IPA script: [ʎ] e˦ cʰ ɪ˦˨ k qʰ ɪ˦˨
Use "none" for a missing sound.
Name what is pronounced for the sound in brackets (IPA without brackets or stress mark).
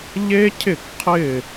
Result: ʎ